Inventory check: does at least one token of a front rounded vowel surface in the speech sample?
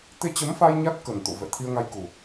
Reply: no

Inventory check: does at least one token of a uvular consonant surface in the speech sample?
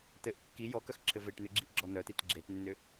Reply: no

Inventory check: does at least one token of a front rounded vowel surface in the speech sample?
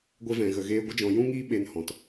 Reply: no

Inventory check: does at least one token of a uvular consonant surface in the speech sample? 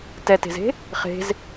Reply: yes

